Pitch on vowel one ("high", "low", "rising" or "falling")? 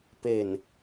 low